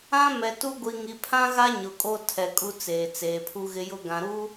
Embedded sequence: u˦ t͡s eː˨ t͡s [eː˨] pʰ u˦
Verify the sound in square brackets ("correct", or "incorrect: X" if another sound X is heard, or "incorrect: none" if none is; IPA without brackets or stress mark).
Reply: correct